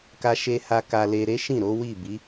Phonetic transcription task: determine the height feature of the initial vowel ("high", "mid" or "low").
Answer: low